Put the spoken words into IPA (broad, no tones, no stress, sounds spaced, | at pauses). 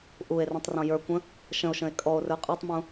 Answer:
ʔ u e̯ r ə̃ tˤ r ɔ̃ j ə˞ kʷ ə̃ | ʃ ə̃ o̯ ʃ ə̃ e̯ kʼ ɔ o̯ r ə˞ qʼ ɜ tˤ m ũ